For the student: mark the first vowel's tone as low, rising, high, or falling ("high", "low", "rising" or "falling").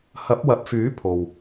rising